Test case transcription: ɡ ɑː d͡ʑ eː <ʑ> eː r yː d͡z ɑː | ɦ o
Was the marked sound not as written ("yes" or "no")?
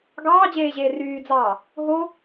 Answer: no